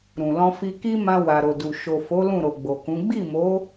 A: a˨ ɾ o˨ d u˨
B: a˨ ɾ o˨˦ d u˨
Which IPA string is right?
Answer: A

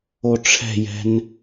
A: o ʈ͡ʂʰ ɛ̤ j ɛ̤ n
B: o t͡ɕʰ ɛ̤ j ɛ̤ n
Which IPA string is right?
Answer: A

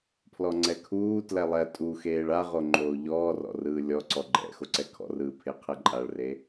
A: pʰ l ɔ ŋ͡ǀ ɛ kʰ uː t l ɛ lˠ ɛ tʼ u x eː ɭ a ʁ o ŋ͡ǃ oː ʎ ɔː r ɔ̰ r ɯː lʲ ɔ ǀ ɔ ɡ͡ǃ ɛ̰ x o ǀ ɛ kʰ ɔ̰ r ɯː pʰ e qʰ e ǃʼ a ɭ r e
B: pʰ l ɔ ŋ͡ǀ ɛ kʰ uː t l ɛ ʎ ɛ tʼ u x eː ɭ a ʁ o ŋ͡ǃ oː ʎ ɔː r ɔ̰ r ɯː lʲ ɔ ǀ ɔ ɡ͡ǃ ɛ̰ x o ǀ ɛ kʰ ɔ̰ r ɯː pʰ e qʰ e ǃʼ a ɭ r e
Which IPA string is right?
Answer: A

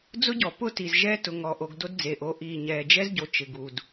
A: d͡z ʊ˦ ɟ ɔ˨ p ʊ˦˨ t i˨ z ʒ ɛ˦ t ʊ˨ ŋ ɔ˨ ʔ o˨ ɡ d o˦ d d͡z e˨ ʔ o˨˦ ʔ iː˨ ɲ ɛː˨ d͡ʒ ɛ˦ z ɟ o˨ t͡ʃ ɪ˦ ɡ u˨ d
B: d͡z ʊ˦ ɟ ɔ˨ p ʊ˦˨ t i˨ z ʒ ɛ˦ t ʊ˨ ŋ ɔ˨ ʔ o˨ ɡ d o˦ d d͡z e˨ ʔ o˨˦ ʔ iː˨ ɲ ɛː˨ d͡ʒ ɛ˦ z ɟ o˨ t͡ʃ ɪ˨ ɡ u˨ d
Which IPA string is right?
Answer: B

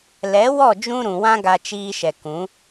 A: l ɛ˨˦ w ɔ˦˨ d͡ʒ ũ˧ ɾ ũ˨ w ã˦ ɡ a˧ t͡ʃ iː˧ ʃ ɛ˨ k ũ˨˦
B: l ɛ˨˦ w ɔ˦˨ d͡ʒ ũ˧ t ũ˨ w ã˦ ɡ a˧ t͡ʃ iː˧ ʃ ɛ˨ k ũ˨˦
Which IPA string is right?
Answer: A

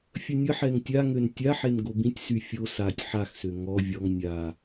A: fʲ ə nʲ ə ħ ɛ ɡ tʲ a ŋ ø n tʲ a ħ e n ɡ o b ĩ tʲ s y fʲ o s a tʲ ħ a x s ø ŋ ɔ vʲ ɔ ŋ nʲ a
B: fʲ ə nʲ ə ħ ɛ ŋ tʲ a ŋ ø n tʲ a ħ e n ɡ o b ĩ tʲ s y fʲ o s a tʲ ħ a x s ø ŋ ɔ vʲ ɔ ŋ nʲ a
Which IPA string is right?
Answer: B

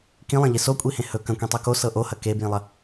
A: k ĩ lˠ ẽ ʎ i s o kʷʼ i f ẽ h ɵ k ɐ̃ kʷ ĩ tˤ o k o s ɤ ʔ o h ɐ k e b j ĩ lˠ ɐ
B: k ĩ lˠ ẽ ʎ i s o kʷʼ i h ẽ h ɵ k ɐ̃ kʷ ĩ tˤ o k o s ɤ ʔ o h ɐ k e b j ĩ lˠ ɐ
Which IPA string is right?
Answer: B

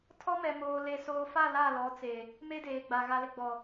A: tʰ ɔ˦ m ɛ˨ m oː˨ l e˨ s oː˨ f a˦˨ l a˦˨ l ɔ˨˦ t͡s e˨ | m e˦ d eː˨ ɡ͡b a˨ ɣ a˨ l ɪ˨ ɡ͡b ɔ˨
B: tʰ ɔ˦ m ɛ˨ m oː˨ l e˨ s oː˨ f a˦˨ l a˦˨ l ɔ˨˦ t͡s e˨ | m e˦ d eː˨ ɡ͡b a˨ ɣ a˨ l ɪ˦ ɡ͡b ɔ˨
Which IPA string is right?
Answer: A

